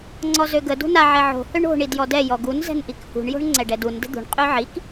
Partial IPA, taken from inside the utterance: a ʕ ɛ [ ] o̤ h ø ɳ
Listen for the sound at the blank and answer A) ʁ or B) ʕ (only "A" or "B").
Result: B